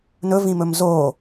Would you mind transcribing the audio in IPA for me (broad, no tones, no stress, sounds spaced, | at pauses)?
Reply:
n ɵ v ĩ m ɵ m z o